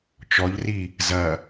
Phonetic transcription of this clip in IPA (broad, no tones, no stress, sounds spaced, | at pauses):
t͡ʃ ɔ ʎ r i | z ɐ